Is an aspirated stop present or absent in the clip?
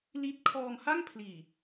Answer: present